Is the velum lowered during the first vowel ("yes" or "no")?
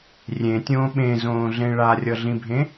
yes